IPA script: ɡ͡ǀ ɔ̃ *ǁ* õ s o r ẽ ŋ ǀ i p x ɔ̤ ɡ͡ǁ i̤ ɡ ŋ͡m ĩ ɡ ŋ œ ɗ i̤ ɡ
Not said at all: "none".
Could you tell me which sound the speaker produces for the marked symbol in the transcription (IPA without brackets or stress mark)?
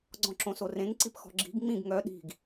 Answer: ǁ